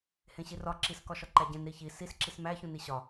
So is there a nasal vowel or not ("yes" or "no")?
yes